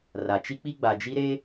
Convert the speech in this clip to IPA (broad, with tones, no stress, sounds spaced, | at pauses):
r a˨ t͡ʃ i˦ k͡p i˦ ɡ͡b a˨ d͡ʒ i˦ ɾ e˦